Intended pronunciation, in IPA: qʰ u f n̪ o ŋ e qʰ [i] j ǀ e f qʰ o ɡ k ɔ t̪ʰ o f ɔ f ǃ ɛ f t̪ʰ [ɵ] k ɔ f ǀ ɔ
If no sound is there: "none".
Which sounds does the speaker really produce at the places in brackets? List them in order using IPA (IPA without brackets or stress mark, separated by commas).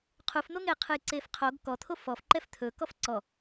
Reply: ɨ, ɵ